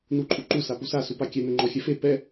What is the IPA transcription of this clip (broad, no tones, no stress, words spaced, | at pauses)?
nuǃʼuǃu sapusa supakʲɛ nʊŋ͡ǃɔxʲɛfe pɛ